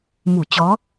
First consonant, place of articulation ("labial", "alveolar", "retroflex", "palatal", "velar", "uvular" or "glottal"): labial